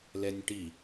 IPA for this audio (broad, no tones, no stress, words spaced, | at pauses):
lɛnʲʈi